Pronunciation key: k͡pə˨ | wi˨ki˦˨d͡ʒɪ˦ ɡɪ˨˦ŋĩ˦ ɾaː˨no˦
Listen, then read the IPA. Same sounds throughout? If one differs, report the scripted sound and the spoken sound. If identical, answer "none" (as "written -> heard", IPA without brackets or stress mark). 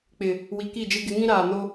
ə˨ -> ɪ˨